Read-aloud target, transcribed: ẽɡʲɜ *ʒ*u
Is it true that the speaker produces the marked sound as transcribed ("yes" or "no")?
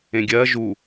yes